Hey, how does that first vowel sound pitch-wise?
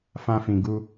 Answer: high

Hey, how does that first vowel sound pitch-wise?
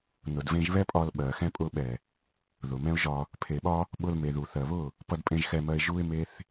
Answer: low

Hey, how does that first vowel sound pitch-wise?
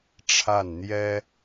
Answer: falling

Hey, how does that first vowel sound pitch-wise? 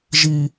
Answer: low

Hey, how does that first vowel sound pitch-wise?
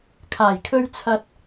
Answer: low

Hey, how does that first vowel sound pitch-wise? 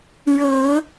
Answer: low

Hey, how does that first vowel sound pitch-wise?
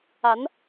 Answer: rising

